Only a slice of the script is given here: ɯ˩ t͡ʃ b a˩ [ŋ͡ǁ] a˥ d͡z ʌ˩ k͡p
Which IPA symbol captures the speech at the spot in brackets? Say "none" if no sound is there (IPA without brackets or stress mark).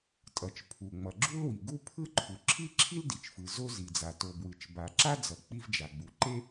ǁ